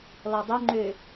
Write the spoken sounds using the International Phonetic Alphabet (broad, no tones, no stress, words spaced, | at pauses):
lɔdˤø ŋ͡ǃø